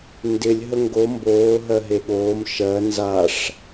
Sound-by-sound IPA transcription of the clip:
n d ɪ lʲ ɦ ə ŋ ɡ o m b oː ɦ ɜ ɦ e ɠ oː m ʃ ɜ n z a ʂ

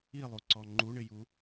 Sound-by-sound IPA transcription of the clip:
i lˠ u ǀ ɔ ŋ͡ǃ u ɳ ɪ j u

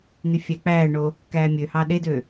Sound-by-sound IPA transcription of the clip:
n̪ y fʲ æ k͡p æː ɳ o | k æː mʲ ø h ɑ ɗ e d ø

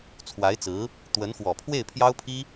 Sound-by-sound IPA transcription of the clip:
t͡sʰ w a˧˥ ɪ̯ t͡s ɹ̩˧˥ | t̪ w ə˧˥ n x w ɔ˨˩ pʰ w e˥˩ ɪ̯ pʰ j ɑ˥ ʊ̯ pʰ i˥

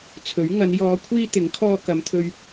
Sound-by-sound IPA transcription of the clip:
t͡sʰ ɵ˨˥ ɥ ŋ ɐ˨˧ n j ɔː˨˧ kʷʰ iː˧ t̪ ɪ˨˥ ŋ kʰ ɔː˧ k ɐ˨˧ m t̪ʰ ɵ˧ ɥ

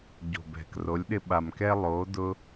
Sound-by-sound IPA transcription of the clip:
ɟ o̤˨ b ɛ̤˨ k r o˨˦ lʲ ɗ ɪ˧ ɓ a˨ m k ɛ˧ lˠ o˨˦ d ʊ˧

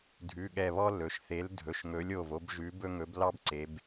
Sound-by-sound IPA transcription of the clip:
dʱ ʉ˩˧˩ ɠ ɛ˧˩ β ɔ˥ l ɵ˩˧ ʃ θ e˨˥ l dʱ ɵ˩˧˩ ʃ ŋ ɵ˨˥ lʲ o˩˧˩ v o˥ b ʒ ʉ˨˥ b ɵ˥ ŋ ɵ˨˥ b l ɑ˥ b ǀ e˩˧ b

